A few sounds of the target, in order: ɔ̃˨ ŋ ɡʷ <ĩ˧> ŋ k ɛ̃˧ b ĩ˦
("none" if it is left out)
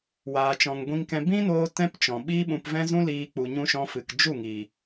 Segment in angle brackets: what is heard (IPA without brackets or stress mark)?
ĩ˧